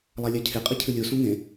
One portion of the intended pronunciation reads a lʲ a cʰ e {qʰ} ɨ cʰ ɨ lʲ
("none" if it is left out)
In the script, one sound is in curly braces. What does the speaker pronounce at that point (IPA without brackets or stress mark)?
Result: qʼ